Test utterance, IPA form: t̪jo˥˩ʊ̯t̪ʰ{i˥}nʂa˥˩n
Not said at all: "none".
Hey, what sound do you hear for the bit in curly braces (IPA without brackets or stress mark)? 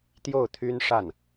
y˥